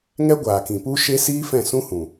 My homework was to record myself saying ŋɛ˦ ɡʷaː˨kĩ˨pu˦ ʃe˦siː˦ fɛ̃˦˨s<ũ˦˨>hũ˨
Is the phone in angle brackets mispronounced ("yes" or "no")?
yes